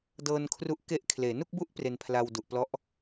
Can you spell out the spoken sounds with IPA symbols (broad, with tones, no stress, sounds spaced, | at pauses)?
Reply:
d ɤː˧ n kʰ r u˦˥ ʔ k e˦˥ ʔ kʰ l eː˩˦ n u˥˩ k̚ b u˥˩ ʔ p r e˧ n pʰ l a˧ w d u˨˩ ʔ p l ɔ˦˥ ʔ